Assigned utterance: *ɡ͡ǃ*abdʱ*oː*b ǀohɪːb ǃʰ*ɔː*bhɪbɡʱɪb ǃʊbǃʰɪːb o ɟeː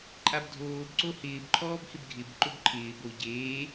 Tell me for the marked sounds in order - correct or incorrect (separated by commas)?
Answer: incorrect, correct, correct